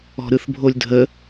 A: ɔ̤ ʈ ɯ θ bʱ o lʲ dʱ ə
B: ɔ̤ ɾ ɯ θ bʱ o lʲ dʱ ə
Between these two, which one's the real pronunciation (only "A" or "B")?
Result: B